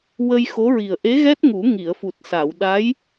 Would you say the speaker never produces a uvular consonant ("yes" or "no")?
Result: yes